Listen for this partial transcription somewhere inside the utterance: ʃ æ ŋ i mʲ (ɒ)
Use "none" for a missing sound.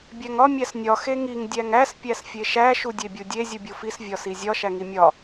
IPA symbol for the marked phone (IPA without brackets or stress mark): ɒ